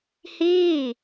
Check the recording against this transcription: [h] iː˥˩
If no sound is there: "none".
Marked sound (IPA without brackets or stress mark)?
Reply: h